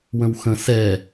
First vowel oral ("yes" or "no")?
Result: no